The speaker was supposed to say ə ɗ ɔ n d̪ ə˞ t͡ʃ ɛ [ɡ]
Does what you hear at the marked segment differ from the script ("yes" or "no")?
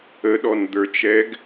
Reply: no